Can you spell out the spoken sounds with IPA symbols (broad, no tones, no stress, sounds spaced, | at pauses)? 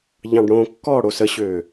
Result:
ʎ ɑ̃ ɖ ɽ õ kː ɔ ɽ o s ə ɕ øː